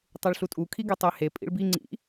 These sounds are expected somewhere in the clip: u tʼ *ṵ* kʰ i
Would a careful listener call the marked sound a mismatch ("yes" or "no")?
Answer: yes